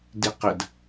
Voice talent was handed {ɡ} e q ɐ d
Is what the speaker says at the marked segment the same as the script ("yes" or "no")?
no